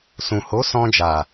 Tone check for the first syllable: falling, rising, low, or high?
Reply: low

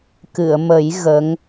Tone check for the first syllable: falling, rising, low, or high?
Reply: low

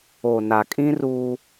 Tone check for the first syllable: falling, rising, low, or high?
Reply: low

